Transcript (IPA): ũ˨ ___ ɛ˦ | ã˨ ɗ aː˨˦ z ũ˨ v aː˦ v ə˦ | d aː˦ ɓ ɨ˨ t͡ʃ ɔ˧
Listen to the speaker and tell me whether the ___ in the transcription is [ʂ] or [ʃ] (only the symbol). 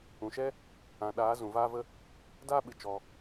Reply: ʃ